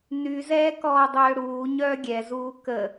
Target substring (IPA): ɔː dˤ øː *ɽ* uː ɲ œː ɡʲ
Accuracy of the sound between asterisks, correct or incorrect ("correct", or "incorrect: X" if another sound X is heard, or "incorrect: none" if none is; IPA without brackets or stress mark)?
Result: correct